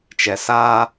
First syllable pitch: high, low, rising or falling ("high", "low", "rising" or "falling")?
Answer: low